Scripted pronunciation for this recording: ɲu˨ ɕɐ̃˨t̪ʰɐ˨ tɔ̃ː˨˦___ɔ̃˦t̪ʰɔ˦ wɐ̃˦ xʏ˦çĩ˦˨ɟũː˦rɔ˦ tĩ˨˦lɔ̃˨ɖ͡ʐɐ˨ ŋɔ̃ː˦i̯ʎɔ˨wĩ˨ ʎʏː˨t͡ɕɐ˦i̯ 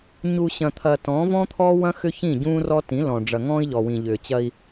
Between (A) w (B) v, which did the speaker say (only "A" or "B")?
B